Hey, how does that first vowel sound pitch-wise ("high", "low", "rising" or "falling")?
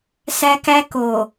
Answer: high